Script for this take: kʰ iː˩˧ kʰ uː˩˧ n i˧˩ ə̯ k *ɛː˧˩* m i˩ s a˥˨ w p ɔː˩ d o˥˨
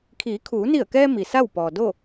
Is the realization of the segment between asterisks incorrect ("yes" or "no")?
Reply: yes